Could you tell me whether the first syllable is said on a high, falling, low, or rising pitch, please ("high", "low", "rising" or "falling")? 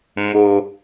low